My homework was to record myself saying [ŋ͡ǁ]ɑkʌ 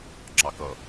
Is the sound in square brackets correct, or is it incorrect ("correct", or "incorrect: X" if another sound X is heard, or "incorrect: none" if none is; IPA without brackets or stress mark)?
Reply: correct